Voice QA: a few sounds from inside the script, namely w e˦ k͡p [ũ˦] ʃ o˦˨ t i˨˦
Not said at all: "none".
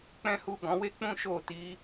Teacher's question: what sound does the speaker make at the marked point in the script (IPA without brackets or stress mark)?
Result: ũ˦